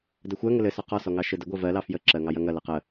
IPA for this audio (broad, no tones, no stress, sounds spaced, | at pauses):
d ə xʷ ɜ ŋ ə l ɘ s ɔ q ɔ s ɔ ŋ ɑ ʃ ɘ d ə ɡʷ ɜ v ɜ l ɑ f j ə ǁ ɜ ŋ ɑ j ɐ ŋ ɐ l ɐ q ə